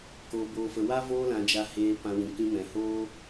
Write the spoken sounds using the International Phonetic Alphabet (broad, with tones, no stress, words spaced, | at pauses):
koː˧boː˧fə˧ wa˦ voː˦lã˧d͡ʒa˧ heː˧ pã˧wĩ˨ kĩ˧mɛ̃˨hoː˦